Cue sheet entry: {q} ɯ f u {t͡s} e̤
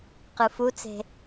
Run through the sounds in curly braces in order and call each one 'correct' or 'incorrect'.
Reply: correct, correct

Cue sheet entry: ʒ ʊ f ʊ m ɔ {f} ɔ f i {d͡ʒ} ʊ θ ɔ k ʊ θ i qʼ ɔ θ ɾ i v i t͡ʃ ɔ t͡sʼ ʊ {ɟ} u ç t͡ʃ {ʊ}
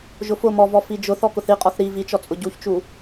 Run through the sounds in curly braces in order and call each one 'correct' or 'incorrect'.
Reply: incorrect, correct, correct, incorrect

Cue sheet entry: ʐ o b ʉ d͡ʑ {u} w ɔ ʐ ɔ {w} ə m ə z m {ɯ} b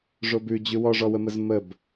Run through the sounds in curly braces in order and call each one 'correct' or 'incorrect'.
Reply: incorrect, correct, incorrect

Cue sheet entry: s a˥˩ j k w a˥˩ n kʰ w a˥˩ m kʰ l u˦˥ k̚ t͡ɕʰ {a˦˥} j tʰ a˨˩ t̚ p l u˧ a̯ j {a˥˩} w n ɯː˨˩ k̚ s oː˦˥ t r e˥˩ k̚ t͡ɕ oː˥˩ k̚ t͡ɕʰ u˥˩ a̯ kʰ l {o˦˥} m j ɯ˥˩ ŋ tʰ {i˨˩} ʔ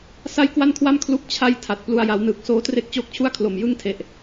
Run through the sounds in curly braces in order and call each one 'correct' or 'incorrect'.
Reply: correct, incorrect, incorrect, incorrect

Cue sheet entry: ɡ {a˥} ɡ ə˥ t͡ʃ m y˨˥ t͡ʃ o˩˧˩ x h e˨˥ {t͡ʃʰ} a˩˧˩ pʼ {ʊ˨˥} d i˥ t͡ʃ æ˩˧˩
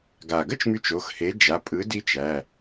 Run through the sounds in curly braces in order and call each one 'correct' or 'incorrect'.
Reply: incorrect, incorrect, incorrect

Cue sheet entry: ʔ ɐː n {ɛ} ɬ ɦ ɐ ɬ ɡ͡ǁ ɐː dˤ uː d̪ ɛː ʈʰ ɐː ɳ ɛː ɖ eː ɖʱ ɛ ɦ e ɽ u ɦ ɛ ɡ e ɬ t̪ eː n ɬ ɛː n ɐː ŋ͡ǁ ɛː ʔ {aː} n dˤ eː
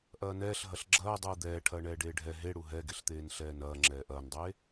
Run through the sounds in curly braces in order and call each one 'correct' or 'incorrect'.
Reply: incorrect, incorrect

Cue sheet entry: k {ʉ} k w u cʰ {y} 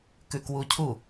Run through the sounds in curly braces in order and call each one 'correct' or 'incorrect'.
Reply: correct, incorrect

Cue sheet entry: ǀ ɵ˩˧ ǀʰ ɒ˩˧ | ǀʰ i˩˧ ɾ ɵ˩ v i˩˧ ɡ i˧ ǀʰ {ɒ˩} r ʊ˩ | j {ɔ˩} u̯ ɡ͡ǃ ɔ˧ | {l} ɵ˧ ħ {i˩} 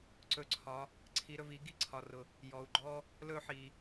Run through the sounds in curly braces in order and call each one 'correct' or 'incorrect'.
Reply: correct, correct, correct, correct

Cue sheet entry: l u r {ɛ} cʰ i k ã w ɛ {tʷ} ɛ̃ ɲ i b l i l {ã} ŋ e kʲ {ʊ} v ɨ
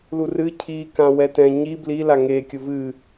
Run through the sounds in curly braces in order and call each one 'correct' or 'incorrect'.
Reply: incorrect, incorrect, incorrect, correct

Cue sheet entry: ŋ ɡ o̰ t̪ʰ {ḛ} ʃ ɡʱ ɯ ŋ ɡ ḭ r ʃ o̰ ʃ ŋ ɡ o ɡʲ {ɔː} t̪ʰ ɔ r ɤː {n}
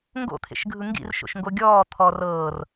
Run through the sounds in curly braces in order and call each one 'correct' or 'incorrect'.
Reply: correct, correct, incorrect

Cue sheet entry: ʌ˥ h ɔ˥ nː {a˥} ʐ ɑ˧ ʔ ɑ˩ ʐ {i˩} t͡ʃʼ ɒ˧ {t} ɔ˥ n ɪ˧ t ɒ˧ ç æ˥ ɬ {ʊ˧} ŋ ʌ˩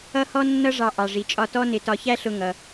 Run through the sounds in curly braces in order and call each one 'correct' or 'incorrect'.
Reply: incorrect, correct, correct, correct

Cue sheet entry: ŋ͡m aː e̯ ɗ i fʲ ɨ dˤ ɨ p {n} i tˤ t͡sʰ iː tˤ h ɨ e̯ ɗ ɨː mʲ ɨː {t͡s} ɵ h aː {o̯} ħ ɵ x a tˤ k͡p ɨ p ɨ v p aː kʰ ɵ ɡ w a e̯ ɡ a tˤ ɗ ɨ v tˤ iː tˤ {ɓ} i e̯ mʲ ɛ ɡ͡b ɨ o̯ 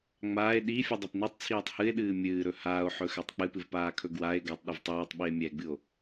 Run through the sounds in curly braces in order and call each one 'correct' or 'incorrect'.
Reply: correct, incorrect, correct, correct

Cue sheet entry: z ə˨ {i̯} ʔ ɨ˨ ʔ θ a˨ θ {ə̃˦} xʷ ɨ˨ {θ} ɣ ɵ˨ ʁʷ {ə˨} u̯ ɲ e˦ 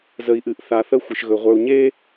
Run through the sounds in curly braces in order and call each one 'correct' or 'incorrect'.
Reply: correct, incorrect, incorrect, incorrect

